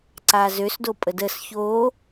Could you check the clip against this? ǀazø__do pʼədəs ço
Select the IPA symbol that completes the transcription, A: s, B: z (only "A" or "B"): A